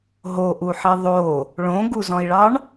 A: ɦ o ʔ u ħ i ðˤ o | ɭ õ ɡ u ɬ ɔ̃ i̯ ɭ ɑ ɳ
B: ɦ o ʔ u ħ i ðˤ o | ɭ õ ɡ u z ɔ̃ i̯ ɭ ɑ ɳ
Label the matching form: B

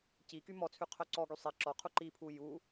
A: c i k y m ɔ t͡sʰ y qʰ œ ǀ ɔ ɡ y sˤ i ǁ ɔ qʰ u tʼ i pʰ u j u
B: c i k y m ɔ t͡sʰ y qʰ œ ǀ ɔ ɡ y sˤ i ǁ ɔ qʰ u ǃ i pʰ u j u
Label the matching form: B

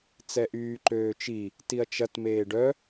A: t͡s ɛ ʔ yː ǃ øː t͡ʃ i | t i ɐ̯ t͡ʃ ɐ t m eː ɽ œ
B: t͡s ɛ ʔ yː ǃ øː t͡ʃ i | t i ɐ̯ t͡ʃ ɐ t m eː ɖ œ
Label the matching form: B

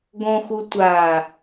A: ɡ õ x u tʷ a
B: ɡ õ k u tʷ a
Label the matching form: A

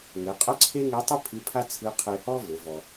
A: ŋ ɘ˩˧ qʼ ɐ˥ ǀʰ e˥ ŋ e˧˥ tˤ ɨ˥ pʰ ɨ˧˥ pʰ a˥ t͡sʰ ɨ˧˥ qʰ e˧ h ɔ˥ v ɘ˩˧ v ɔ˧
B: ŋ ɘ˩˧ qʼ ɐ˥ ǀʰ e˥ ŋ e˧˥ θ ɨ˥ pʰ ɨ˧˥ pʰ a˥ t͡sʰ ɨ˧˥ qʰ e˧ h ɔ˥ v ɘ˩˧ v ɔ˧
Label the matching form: A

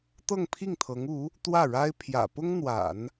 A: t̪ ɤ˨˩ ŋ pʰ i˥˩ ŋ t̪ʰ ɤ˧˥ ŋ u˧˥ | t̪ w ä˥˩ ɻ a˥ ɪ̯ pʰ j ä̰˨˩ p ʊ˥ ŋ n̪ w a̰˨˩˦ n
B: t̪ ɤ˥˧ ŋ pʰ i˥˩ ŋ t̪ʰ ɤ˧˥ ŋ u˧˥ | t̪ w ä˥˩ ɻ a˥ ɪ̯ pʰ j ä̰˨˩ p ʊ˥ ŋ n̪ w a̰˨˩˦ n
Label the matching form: B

